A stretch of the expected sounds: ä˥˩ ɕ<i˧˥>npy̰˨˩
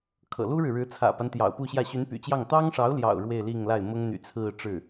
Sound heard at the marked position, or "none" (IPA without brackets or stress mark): y˧˥